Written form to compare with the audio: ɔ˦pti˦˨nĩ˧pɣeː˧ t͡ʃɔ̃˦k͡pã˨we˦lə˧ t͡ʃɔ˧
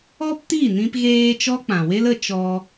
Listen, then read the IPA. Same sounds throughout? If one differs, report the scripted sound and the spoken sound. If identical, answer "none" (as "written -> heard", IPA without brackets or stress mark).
ɔ̃˦ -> ɔ˦